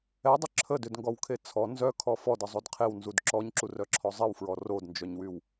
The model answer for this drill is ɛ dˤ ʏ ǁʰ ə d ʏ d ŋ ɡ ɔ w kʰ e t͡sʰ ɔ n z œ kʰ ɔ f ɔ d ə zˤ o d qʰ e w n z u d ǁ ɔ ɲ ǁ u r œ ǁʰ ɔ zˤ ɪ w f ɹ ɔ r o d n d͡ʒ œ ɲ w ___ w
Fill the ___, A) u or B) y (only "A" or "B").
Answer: B